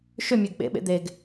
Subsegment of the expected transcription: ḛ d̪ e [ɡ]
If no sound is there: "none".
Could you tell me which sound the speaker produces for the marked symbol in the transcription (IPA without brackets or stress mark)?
ɡ